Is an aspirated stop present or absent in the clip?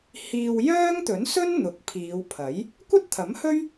present